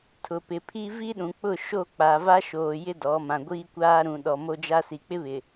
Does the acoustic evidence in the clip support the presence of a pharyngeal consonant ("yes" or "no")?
no